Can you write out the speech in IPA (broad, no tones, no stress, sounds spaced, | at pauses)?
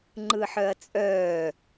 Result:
ŋ͡ǃ ɯ ħ œ ɐ̯ t͡sʼ œː